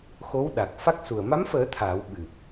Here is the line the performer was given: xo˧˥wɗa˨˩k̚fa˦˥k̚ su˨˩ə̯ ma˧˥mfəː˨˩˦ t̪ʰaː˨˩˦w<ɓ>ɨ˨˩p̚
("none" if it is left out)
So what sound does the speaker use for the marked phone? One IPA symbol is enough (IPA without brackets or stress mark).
ɓ